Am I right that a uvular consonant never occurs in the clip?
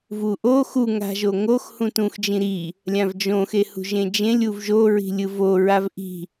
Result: yes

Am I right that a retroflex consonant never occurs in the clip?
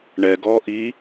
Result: no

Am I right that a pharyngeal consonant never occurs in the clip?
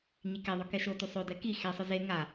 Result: yes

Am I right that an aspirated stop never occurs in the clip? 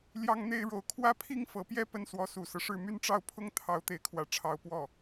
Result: no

